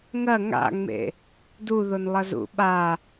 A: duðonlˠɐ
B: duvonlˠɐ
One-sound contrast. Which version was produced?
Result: A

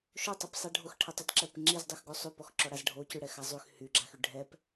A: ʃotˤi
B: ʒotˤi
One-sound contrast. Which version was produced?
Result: A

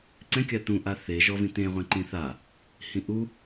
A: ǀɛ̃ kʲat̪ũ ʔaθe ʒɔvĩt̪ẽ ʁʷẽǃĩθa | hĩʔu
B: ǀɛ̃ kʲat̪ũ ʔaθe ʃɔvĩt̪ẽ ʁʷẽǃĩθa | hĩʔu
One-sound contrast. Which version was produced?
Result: A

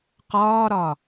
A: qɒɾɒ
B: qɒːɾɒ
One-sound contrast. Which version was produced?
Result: B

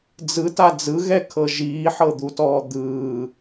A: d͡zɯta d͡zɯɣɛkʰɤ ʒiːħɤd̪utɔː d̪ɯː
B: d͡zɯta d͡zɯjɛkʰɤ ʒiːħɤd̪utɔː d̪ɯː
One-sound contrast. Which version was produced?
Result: A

